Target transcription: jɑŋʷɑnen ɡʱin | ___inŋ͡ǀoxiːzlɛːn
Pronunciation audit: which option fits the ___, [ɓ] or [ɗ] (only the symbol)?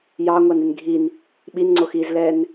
ɓ